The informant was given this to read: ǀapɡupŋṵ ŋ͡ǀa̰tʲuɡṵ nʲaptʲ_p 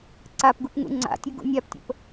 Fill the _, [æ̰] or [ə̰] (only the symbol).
ə̰